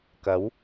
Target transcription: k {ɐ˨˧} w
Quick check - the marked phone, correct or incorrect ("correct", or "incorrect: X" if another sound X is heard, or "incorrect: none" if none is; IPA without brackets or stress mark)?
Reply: incorrect: ɐ˨˥